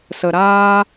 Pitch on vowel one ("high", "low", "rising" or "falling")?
low